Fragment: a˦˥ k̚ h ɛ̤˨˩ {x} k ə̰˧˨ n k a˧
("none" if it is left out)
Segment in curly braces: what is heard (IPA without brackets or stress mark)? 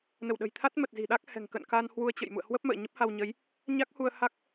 ŋ